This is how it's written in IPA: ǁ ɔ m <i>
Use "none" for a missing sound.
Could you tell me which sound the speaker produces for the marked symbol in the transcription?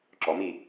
i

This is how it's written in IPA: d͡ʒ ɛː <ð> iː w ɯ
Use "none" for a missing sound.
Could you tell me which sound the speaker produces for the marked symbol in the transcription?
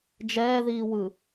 ð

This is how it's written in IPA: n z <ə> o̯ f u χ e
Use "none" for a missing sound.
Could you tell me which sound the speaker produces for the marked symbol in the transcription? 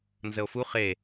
ə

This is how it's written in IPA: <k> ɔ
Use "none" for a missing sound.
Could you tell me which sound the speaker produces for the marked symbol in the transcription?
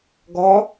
ɡ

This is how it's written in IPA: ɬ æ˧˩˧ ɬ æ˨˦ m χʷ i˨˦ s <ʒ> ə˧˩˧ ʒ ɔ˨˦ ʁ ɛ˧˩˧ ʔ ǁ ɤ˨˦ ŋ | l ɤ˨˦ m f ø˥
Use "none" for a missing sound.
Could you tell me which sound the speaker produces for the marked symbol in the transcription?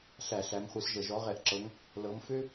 ʒ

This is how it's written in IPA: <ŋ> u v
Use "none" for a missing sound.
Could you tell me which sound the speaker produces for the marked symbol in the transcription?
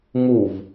ŋ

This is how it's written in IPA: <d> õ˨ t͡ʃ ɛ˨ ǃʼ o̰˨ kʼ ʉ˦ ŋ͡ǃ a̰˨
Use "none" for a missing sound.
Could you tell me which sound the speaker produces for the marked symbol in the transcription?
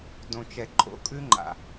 d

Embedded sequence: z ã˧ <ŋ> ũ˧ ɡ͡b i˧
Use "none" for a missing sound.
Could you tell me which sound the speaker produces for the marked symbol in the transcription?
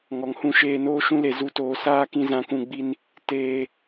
k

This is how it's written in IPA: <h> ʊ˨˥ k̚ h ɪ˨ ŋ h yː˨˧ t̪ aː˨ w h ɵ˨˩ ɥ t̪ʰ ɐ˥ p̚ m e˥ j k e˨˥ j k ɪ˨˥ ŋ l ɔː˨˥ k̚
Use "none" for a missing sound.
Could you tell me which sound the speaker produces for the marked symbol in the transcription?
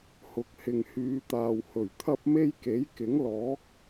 h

